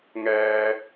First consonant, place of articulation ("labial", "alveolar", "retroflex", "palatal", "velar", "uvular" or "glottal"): velar